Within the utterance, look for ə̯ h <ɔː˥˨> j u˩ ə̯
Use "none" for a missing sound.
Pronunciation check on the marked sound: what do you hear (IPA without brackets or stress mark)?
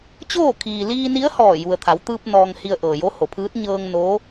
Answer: ɔː˧˩